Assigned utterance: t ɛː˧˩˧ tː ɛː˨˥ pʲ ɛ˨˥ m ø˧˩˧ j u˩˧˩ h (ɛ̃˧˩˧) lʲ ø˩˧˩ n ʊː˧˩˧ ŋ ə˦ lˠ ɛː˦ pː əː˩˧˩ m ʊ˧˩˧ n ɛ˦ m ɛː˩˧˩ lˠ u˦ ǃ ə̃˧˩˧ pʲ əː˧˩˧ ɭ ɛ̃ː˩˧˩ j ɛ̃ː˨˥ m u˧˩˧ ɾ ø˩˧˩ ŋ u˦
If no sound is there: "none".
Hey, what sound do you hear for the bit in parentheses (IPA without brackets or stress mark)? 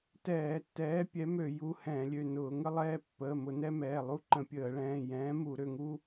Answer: ɛ̃˧˩˧